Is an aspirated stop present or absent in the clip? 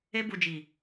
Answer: absent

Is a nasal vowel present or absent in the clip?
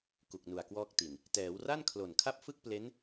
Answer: absent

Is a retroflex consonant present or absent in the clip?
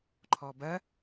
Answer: absent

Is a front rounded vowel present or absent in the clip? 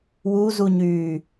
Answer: present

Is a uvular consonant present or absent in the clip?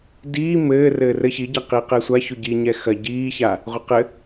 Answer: present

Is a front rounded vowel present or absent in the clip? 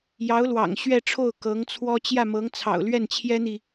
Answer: absent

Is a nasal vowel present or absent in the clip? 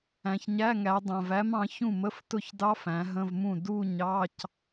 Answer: present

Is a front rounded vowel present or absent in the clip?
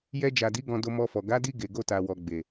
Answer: absent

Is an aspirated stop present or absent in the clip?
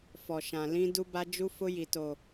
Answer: absent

